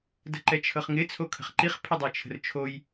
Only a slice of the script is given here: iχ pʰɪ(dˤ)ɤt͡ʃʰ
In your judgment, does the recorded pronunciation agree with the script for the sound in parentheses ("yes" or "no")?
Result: yes